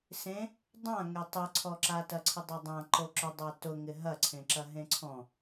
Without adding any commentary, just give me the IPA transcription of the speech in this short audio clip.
sẽ | dˤã ŋetˤɪǀʰɔǁa tɐǀʰɪdˤadˤã ǃoǁʊdˤa tʊŋɪ ɦɐǀʰẽǁɐ ɦẽǀʰɔ̃

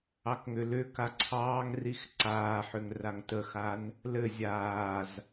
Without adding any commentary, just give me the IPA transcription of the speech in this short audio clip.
ɑkŋʏlʏka ǀʰɑːŋrix ǀaːħʏŋ raŋtəxan | lɘ zʲaːz

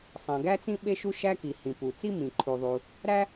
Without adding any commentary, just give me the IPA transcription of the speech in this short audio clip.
sˤæ̃˩ɡæ˥t͡sĩ˥ ɓe˥ʃu˥ʃæ˥ki˩ hĩ˩pu˩t͡si˥ mĩ˩ǃʰu˩ðˤu˩ | ɾæ˥

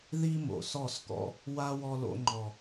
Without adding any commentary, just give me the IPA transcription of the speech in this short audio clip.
ði˦mo̰˨sɔ˦˨skɔ̰˧ | wa˦ wɔ˧lo̰˧ŋ͡ǃɔ˨

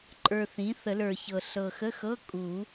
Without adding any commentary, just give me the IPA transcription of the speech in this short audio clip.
ǃʼə˞˨ θĩ˩˥θə˨˩˦lə˞˨çɤ˨ ɬɤ˨xə˧˥˧xɤ˧˥˧ kʼu˨˩˦

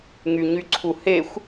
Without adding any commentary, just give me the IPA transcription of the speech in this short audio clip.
ŋyɲyǀʰuhexʷ

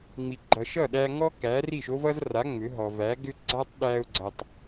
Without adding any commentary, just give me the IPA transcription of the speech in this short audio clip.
ŋ͡mi˩ɡ͡ǃʌ˩ʃ ʌ˥˩ɗæ˧ ŋɔ˥ kæ˩˥ri˥˩ʃo˥vʌ˥z ra˩˥ ŋ͡mʏ˩˥ ɦɔ˩væ˩˥ɡʏ˥ ɡ͡ǀa˥tˤɗæ˧ʊ̯ɡ͡ǀʌ˩tˤ

